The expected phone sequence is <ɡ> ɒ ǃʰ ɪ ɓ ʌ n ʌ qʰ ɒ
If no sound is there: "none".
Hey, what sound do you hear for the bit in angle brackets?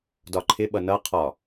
d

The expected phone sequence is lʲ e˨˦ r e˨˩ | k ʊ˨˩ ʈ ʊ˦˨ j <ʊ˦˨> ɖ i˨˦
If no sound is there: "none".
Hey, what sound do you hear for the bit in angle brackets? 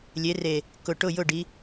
ʊ˦˨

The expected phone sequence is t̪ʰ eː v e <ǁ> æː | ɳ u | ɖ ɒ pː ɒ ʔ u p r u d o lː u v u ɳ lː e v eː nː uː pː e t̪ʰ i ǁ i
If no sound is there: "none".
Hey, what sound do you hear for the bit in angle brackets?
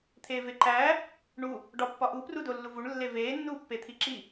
ǃ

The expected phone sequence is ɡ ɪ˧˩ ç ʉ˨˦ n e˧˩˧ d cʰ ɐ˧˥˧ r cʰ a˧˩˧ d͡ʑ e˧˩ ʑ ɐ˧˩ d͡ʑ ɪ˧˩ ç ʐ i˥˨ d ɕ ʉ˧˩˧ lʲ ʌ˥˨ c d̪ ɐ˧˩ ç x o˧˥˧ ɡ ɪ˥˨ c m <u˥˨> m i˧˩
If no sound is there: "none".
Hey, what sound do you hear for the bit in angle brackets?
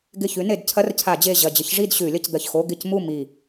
u˥˨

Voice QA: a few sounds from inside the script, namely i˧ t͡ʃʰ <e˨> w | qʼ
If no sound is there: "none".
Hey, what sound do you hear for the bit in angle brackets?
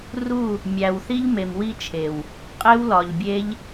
e˨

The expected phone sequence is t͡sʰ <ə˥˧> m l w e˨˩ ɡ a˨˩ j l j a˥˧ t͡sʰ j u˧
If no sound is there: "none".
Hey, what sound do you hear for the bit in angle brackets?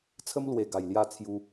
ə˦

